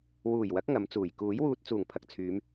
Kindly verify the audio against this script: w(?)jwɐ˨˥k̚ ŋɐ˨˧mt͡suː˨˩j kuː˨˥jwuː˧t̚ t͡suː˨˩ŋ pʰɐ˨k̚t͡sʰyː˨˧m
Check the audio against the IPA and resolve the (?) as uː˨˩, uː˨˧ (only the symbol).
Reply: uː˨˩